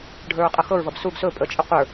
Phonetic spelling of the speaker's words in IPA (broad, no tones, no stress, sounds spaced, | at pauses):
ɖʱ ə˞ ɹ qʼ ɤ x ɤ ɹ v ʌ b s u ɡ s ɵ pʼ ə t͡ʃʼ ə qʷ ə˞